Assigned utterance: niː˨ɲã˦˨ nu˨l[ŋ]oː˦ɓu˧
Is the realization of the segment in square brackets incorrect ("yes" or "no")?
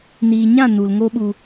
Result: no